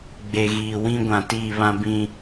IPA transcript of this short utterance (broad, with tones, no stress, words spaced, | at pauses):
ɡ͡be˨ɣiː˨ wĩ˦ɡʷã˨tiː˦˨ βã˦bĩ˦